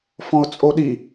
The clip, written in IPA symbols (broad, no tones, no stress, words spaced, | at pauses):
fɔ̃ʊ̯t͡sʼoɗi